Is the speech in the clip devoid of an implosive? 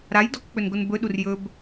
no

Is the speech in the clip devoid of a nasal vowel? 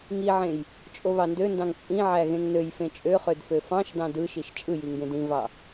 no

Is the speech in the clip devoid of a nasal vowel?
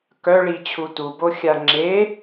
yes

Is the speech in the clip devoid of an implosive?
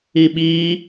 no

